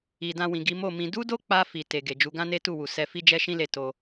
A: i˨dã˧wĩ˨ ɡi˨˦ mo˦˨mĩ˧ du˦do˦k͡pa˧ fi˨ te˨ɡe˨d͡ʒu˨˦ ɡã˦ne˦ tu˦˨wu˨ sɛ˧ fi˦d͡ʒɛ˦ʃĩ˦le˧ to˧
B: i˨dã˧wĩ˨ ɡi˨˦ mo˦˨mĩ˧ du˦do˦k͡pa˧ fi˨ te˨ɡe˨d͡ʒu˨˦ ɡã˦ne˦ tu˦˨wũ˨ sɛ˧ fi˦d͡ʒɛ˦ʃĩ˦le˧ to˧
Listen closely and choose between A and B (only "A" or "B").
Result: A